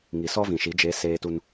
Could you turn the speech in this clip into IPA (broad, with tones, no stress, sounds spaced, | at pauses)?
ŋ i˨ s ɔ˦ v ĩ˨ ʃ i˨˦ d͡ʒ e˨˦ s eː˦ t u˦ n